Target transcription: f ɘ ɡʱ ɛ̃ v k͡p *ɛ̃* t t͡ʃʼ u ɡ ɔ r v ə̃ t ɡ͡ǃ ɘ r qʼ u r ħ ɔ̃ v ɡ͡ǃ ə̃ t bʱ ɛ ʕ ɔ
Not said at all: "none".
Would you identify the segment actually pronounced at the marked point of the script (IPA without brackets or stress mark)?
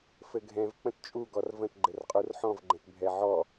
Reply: ə̃